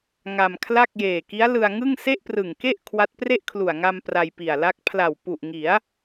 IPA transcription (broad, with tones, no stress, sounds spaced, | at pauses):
ŋ a˧ m kʰ l a˥˩ k̚ j eː˨˩ k i˦˥ a̯ l ɯ˧ a̯ ŋ ɯ˥˩ ŋ s e˥˩ ʔ p r ɯ˨˩ ŋ k e˥˩ ʔ kʰ w a˦˥ t̚ p r e˥˩ ʔ kʰ l u˨˩ a̯ ŋ a˧ m p r a˧ j p i˨˩ a̯ l a˦˥ k̚ pʰ l a˨˩ w p u˨˩ ʔ ŋ i˩˦ a̯